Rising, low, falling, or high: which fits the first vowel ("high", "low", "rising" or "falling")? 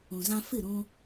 low